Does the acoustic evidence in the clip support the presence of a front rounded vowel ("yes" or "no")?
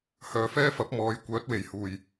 yes